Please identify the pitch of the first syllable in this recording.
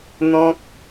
high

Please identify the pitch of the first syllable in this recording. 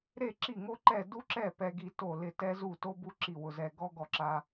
falling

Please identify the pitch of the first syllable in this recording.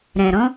low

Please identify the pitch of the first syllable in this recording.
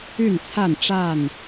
falling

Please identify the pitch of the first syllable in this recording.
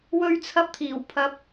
high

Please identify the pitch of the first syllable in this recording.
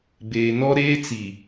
low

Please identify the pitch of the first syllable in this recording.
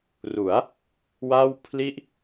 rising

